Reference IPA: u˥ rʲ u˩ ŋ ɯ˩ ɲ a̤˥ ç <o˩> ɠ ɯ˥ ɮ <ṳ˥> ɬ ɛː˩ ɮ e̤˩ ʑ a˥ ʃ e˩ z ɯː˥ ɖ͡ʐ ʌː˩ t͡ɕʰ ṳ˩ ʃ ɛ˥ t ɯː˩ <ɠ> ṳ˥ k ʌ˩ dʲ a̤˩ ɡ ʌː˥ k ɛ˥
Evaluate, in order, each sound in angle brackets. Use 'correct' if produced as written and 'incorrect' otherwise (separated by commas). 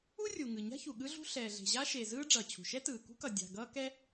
incorrect, correct, incorrect